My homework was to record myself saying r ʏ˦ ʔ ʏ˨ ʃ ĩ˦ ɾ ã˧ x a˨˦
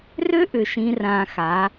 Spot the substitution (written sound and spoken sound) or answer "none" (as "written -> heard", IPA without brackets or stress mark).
ɾ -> r